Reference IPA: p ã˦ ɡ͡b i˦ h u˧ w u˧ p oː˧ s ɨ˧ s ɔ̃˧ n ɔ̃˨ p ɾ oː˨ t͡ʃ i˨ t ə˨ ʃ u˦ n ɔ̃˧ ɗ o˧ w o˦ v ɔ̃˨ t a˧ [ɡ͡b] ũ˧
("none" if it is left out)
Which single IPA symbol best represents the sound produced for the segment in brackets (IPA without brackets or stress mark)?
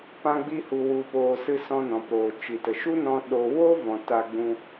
ɡ͡b